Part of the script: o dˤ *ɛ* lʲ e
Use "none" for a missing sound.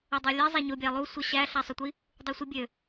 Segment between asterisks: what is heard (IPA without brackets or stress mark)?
æ